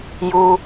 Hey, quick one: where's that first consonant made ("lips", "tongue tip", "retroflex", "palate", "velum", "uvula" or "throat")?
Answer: palate